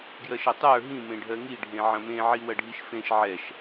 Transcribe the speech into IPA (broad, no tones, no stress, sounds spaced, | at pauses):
ɡ j ɜ ʃ ɐ tˤ ə˞ ɦ ĩ m ẽ ɖʱ ɜ ŋ i ɖʱ ẽ ʕ ɐ̃ m ẽ ʕ i w ɐ ɖʱ i ʃ f ẽ ʃ ʕ ɛ ʃ